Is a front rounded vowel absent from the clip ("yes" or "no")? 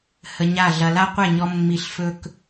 yes